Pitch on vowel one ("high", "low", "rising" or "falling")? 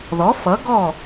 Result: rising